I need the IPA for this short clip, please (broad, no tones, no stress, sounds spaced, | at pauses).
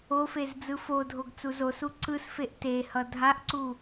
o f e z d͡z ɯ f o dʱ o ɡ t͡s u z o s u ǀ ɯ s f e ʔ t e h ʌ dʱ a ʔ ǀ u